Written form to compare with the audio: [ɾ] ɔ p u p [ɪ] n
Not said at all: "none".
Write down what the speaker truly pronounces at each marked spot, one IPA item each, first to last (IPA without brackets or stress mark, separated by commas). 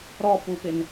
ɾ, ɪ